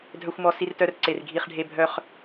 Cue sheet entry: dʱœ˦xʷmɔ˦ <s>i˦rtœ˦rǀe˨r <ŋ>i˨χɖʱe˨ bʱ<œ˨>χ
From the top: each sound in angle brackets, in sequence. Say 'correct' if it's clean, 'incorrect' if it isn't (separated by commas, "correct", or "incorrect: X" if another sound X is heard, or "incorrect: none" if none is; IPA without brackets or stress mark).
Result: correct, incorrect: ɡʱ, correct